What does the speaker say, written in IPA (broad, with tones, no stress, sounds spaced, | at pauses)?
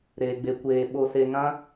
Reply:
ɾ eː˧ ɡ͡b e˧ kʷ eː˧ ɓ o˧ s e˧ ŋ ã˦